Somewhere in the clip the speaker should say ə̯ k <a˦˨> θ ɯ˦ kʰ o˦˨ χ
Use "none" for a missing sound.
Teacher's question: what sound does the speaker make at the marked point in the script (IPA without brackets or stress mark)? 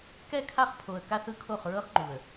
a˦